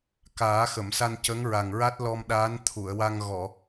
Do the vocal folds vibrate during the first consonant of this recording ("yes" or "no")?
no